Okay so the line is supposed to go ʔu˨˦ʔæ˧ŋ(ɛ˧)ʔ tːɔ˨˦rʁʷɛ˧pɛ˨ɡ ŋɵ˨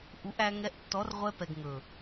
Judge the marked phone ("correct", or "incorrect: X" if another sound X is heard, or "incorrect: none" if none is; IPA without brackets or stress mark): correct